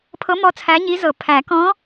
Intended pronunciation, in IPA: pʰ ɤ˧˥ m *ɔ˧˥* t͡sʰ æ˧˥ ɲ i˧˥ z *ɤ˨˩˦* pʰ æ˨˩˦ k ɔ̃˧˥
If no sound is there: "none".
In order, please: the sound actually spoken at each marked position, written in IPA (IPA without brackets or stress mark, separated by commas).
ɔ˧˥, ɤ˨˩˦